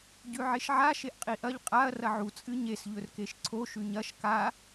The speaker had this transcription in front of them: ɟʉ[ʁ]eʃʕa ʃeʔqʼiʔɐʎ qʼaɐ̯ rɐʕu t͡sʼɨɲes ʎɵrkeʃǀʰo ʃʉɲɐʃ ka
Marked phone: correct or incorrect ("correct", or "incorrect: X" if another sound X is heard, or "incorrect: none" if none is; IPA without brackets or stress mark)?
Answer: incorrect: ʕ